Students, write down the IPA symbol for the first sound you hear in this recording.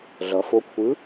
ɮ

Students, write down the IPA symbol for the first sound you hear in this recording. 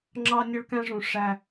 ŋ͡ǁ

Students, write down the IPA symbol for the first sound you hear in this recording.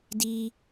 d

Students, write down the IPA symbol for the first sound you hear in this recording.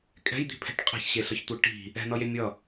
kʼ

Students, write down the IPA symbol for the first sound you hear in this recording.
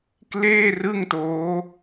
k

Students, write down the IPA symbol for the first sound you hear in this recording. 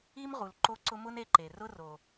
i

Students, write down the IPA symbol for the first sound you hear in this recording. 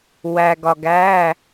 w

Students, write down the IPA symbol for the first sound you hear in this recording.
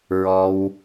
ɹ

